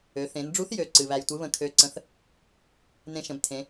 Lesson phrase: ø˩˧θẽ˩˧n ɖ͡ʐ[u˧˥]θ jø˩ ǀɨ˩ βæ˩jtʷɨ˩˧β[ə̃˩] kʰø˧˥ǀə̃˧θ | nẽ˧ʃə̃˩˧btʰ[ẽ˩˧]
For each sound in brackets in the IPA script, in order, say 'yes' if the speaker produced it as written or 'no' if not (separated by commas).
yes, yes, yes